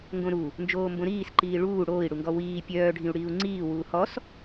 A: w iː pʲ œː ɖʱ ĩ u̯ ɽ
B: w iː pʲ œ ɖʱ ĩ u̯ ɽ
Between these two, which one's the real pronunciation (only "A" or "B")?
A